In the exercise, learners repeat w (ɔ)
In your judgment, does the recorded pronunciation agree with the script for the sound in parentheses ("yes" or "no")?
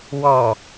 yes